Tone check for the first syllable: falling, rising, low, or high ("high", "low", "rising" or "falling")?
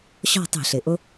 falling